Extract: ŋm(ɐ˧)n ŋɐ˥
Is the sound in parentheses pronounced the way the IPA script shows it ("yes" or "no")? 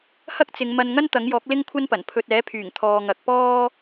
yes